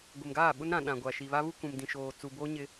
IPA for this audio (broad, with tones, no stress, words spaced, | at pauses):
ɡʷɪ˨mɡaː˦˨ɓʊ˦n ɾã˨ɗã˨ ɡʷa˨ʃi˨βa˦ βu˦kũ˨m dĩ˨ʃoː˨ t͡su˨ boː˦ɲɪ˦